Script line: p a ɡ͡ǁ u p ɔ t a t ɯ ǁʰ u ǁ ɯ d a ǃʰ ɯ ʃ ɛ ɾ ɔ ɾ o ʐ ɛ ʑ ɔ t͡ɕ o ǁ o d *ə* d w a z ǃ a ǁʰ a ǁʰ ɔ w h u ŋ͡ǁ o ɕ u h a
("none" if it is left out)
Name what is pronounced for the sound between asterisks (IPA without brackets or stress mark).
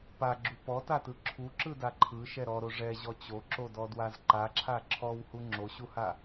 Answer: ɔ